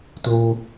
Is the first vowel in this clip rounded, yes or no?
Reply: yes